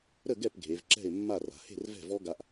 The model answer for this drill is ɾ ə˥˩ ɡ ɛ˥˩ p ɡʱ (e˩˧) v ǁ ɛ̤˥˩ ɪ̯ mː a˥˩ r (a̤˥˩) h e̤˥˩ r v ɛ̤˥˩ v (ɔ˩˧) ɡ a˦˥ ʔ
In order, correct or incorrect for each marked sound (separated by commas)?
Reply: correct, incorrect, incorrect